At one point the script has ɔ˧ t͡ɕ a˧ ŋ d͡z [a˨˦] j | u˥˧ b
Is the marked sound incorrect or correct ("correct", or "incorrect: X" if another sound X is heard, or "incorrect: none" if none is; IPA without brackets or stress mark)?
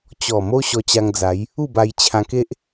correct